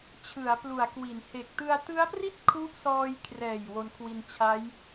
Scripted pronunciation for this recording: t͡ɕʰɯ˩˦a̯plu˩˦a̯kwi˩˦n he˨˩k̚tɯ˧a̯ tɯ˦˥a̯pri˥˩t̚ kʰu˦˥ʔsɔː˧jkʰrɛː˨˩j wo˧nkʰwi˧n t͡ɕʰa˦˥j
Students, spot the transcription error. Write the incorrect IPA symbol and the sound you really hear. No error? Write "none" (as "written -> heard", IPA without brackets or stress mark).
none